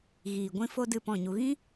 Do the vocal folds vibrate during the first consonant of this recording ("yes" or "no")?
yes